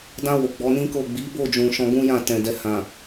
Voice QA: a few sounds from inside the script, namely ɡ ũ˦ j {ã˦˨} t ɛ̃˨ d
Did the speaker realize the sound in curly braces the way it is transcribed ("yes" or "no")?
yes